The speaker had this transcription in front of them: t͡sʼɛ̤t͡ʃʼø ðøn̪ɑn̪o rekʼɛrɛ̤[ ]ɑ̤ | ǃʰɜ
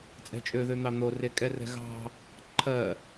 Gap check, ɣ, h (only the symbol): ɣ